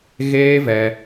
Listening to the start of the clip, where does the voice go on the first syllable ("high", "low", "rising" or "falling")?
high